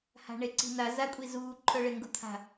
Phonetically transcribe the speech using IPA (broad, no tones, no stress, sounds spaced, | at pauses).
h a̤ ɳ e ǀ i̤ n a z a kʷʼ i z uː ǃʰ œ ɭ e ŋ ɡ u t̪ʰ a̤